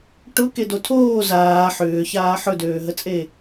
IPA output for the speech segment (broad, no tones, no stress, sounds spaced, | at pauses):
ʈ ʊ k e d o tʰ oː z aː ħ ʏː ç aː ħ ɵ d øː ɦ ə t͡sʼ e